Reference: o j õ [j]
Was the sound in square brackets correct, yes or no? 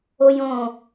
no